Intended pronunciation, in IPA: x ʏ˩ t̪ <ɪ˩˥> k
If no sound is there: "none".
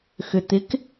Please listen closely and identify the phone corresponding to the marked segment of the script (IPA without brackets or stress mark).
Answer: ɪ˩˥